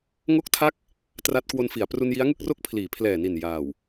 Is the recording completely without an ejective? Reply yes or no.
yes